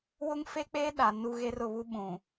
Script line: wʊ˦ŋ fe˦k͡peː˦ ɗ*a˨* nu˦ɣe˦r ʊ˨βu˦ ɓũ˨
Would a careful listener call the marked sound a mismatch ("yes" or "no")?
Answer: no